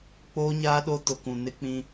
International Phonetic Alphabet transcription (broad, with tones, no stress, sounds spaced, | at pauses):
k͡p oː˦ ɲ aː˦ ɗ o˦ t ʊ˨ k ũ˨ n ɪ˦ k͡p ĩ˦